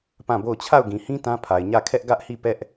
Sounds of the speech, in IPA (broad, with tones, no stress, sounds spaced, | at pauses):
p ã˦˨ b o˦˨ ʊ̯ t͡ɕʰ a˦˨ ʊ̯ ɡ ĩ˨ h ĩ˦ t ã˦ pʰ a˨ ɪ̯ ɲ ä˦˨ kʰ ɛ˦ ʔ ɡ ä˦ ʔ h i˦˨ p ɛ˦ ʔ